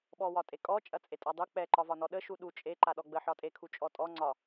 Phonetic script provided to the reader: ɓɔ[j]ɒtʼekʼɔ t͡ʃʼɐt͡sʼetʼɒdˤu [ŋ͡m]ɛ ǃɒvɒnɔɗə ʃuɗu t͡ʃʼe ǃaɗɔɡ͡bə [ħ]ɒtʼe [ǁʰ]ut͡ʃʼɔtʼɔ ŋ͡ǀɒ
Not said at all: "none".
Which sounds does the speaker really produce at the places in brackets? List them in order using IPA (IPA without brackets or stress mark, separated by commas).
w, k͡p, ħ, kʰ